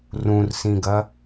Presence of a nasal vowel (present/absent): present